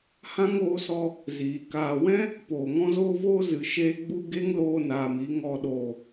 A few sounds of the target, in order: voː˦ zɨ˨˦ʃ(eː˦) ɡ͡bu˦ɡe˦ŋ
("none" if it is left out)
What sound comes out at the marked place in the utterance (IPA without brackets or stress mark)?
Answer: eː˦